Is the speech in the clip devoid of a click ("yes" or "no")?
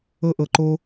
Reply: no